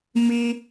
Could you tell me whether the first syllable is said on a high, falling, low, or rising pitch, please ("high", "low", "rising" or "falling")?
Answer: high